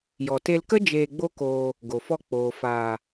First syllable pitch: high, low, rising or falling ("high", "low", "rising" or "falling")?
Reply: low